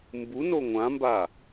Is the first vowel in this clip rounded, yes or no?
yes